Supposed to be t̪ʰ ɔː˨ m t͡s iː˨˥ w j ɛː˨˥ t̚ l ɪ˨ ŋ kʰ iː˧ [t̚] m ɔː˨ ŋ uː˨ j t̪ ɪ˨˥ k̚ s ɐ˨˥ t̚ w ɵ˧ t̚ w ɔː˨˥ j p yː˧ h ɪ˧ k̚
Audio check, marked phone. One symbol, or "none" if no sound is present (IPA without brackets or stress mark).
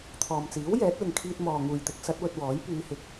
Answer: t̚